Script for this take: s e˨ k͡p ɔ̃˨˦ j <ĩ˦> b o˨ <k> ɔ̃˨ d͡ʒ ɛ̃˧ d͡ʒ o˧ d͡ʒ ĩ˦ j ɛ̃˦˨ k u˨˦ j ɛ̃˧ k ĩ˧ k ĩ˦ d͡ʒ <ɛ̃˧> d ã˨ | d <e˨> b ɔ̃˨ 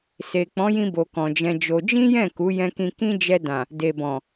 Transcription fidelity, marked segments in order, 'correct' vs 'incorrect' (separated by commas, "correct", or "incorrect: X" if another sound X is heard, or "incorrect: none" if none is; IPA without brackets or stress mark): incorrect: ĩ˧, correct, incorrect: ɛ˧, correct